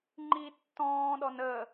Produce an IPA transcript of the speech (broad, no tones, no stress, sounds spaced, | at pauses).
ŋ͡ǃ i tː ɔ̃ː ɗ ɔ n ə